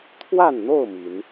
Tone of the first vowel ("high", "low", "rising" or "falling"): falling